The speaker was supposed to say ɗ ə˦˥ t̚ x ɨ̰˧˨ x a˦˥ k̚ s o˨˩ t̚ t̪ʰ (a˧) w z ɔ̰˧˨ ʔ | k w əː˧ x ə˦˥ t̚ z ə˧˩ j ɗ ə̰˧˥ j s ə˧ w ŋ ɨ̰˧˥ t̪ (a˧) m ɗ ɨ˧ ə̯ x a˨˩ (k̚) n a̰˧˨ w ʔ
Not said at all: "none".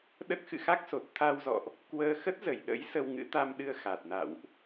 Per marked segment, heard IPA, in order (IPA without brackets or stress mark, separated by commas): a˧, a˧, t̚